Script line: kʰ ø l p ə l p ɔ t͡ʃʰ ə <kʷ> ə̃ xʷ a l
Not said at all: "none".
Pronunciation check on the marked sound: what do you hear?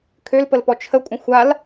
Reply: kʷʼ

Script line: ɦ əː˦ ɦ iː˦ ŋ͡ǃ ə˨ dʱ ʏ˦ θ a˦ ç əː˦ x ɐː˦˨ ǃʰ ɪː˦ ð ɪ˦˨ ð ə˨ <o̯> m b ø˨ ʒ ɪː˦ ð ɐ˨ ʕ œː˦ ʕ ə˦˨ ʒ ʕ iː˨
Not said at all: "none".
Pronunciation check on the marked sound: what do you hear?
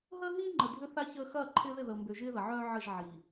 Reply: o̯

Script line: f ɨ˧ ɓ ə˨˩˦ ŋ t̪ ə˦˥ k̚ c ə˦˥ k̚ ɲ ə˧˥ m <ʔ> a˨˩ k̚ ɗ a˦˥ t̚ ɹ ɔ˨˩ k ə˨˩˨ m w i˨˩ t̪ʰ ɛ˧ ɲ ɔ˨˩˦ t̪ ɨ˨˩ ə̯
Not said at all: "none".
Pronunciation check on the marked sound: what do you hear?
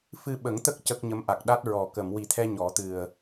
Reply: ʔ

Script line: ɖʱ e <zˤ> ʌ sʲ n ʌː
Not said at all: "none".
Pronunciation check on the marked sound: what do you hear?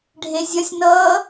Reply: zʲ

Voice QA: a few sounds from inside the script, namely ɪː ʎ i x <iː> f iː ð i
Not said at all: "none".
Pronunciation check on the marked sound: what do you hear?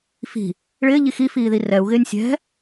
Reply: i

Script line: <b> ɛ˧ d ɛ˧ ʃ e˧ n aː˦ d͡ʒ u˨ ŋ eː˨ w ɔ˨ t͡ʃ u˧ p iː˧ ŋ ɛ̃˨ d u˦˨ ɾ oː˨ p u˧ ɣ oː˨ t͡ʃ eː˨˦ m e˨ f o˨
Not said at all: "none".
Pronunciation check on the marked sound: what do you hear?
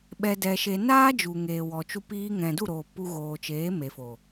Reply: ɓ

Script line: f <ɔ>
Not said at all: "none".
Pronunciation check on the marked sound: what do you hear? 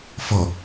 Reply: ɔ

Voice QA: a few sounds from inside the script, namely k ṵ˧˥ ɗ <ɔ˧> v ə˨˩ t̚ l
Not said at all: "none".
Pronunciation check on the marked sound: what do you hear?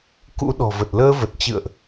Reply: ɔ̤˨˩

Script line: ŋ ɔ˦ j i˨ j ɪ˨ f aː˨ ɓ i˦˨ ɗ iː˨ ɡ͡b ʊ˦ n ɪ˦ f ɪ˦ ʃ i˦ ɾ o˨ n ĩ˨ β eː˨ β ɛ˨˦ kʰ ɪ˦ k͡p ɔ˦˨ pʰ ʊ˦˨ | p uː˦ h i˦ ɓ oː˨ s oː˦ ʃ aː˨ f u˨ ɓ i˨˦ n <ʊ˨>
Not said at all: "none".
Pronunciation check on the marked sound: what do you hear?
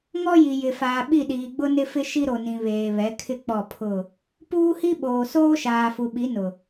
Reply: ʊ˨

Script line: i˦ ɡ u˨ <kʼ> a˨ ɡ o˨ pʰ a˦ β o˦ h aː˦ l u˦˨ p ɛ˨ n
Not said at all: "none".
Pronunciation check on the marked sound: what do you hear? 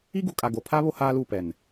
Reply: kʼ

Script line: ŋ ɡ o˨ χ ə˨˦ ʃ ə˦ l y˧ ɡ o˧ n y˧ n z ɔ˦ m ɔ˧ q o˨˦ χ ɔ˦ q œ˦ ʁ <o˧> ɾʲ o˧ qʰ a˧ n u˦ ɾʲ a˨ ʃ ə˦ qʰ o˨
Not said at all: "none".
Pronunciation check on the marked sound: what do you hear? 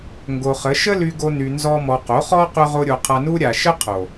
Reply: o˦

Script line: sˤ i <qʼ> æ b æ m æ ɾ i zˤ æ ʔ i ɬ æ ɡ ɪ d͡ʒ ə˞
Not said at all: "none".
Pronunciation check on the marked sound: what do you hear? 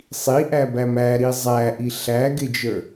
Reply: ʔ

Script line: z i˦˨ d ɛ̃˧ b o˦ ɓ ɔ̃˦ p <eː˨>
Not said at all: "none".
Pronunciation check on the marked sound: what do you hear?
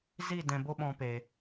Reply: eː˧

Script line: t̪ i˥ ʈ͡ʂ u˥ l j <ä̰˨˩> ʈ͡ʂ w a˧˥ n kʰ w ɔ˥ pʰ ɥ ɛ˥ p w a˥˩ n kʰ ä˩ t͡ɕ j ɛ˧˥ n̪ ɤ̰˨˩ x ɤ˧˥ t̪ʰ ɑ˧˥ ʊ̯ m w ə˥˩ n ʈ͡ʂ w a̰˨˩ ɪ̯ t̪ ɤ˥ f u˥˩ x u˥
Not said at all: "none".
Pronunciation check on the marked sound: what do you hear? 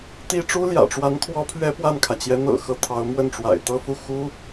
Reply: ä̰˨˩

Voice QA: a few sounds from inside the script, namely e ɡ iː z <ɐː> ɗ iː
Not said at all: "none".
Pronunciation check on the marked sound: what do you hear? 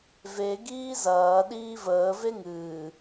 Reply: ɐː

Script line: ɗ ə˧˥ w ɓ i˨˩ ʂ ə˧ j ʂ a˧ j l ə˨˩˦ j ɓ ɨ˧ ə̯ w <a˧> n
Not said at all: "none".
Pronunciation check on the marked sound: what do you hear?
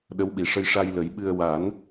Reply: a˨˩˦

